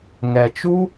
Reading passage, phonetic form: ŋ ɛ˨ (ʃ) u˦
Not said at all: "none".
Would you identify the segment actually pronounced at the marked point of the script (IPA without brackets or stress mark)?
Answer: t͡ʃ